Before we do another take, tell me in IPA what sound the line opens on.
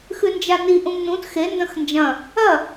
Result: x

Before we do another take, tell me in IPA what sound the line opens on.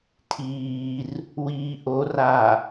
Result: tʰ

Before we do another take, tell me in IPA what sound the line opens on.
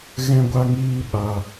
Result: ɣ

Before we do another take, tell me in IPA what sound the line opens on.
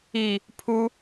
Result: i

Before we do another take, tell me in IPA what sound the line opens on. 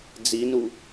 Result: d͡z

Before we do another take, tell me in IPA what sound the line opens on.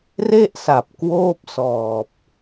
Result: r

